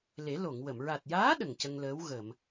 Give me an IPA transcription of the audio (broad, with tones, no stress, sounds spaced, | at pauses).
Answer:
l e˨˩˦ l o˨˩˨ ŋ w ə˨˩˨ m ɹ a˨˩ t̚ j aː˧˥ ɗ ə˨˩ ŋ c ə˧ ŋ l əː˧˥ w ɣ ə˨˩˨ m